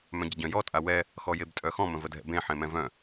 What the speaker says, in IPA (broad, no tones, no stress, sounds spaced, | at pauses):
m œ̃ ɟ ə ɟ œ̃ j ɔ tʼ a w ɛ | x ɔ j e b tʼ œ x ɔ̃ m ə̃ v ə dʱ ɛ̰ b ẽ ħ ẽ m ɛ̃ v œ̃